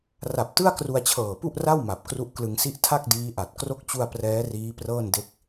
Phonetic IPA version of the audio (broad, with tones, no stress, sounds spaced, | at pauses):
r a˨˩ p̚ t ɯ˥˩ a̯ k r u˧ a̯ t͡ɕʰ ɤː˨˩ p u˥˩ ʔ r a˥˩ w m a˨˩ p̚ k r u˦˥ ʔ k l ɯ˧ ŋ s i˥˩ ʔ tʰ a˥˩ k̚ d iː˦˥ ʔ a˨˩ t̚ k r o˦˥ k̚ t͡ɕ u˧ a̯ p r ɛː˦˥ r iː˦˥ p r ɤː˥˩ n d e˥˩ k̚